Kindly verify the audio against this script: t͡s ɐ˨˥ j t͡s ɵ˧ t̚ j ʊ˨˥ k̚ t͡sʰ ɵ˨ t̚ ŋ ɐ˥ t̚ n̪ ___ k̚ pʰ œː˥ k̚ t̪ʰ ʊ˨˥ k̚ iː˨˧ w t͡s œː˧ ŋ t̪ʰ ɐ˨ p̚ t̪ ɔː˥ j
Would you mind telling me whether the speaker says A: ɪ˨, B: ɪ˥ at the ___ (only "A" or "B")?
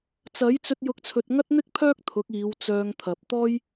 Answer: B